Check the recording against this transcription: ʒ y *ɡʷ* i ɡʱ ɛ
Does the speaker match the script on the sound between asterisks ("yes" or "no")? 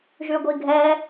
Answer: yes